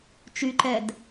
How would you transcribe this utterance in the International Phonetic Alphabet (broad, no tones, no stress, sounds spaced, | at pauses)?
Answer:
t͡ʃ y ǃ ɛ d